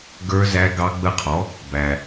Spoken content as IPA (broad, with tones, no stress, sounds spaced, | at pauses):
ɡ ə˞˦˥ z æ˦˥ ɡ ɑ˦˥ ɡ͡b ə˦˥ qʰ ɔ˩˥ | b æ˩